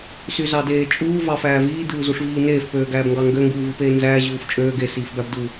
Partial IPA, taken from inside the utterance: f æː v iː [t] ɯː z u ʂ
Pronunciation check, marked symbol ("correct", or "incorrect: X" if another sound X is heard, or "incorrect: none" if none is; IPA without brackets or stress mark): incorrect: d